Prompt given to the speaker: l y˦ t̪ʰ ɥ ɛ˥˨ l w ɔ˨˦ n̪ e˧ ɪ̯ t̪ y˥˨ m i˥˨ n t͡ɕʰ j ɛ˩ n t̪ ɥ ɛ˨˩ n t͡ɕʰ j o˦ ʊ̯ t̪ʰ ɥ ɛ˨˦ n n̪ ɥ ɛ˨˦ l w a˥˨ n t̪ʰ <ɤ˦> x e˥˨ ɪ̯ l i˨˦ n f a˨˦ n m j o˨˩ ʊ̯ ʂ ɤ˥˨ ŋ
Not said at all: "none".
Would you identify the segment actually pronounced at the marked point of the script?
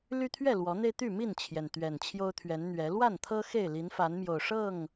ɤ˦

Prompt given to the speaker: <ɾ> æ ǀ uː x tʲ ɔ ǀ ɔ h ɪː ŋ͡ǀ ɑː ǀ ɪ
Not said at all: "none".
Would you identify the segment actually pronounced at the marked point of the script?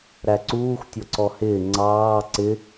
ɾ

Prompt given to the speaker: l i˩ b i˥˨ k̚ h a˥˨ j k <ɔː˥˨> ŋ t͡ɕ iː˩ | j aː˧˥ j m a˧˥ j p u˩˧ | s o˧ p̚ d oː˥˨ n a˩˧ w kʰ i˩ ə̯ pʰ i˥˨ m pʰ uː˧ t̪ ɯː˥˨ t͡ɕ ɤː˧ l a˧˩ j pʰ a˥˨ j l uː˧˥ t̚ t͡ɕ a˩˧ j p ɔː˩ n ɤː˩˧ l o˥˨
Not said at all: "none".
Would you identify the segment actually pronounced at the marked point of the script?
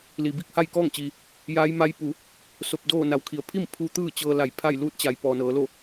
ɔː˥˨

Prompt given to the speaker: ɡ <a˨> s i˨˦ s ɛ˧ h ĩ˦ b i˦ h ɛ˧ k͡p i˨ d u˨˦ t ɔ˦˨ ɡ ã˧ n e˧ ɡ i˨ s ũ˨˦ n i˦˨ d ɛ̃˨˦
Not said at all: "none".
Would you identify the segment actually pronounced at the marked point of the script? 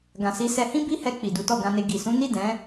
ã˨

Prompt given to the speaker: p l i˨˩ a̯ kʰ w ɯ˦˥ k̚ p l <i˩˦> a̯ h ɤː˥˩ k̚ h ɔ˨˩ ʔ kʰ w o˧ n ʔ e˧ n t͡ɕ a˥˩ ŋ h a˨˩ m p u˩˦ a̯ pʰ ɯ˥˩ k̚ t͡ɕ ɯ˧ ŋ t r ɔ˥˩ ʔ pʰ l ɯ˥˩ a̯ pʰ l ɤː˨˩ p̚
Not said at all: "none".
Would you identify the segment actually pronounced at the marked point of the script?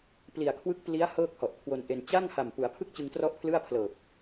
i˦˥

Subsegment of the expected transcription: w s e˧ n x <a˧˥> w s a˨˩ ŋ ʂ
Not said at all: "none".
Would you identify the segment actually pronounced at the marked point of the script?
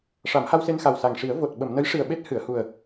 a˨˩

